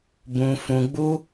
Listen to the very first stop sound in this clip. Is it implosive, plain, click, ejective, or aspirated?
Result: plain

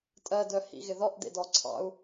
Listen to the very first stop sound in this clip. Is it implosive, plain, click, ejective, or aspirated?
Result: ejective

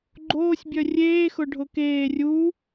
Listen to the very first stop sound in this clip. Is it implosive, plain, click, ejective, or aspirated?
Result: click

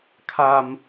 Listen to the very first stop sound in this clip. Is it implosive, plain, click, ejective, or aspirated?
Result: aspirated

